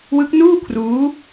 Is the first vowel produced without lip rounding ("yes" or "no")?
yes